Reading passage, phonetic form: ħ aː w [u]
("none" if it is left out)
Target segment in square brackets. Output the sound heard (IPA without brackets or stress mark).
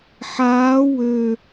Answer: ø